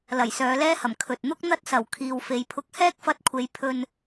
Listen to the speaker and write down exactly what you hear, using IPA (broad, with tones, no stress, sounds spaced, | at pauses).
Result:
l ɐ˨˩ j s œː˨˧ l ɛː˥ h ɐ˨˩ m kʰ ɵ˨ t̚ n̪ ʊ˥ k̚ n̪ ɐ˥ t̚ s ɐ˨˩ w kʰ iː˨ w f e˨ j pʰ ʊ˧ k̚ h ɛː˥ k̚ f ɐ˧ t̚ kʷʰ e˨˧ j pʰ ɵ˧ n